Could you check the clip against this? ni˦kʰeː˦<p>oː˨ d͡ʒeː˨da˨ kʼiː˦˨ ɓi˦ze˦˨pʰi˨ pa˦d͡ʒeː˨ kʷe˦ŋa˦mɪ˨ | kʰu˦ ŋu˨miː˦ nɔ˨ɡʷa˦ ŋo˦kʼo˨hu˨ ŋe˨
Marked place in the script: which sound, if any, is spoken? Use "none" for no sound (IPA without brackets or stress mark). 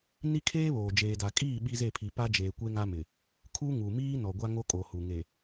β